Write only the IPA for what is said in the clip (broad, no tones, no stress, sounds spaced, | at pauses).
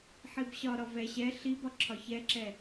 ħ i b ɕ ɒ ɾ ɒ v ɛ ɕ ɛ ɬ i b ɒ ǁʰ ɒ ç ɛ ǁ ɛ